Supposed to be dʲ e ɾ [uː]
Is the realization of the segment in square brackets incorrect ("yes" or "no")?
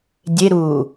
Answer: no